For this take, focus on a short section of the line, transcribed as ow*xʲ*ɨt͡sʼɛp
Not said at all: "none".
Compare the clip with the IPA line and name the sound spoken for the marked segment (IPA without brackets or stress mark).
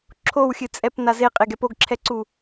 xʲ